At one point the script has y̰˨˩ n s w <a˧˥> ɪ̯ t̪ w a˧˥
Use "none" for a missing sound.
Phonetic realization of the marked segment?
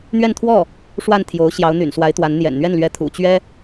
a˧˥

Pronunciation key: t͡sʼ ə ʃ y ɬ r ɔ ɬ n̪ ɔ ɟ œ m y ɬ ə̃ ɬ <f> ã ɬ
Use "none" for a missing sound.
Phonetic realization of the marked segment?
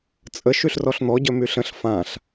f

